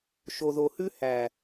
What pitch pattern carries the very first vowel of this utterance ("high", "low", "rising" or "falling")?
low